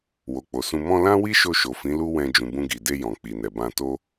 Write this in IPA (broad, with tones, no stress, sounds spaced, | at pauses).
w o˨ k͡p o˨ s ũ˧ m ɔ̃˧ l ã˦ w i˦ ʃ o˧ ʃ o˨ f ĩ˨˦ l u˦ w ɛ̃˧ d͡ʒ ũ˨ b ũ˧ ɡ i˨ d e˧ j ɔ̃˨ k͡p i˨ n ɛ˨ b ã˧ t o˦